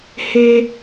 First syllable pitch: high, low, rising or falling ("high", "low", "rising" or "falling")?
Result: high